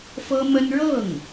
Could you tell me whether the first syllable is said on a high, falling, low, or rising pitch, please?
high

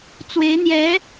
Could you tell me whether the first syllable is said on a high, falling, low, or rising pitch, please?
rising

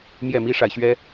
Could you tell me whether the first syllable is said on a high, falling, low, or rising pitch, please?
falling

